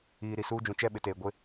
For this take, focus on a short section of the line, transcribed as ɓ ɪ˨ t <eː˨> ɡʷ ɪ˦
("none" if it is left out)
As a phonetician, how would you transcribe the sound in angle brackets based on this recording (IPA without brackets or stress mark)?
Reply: eː˨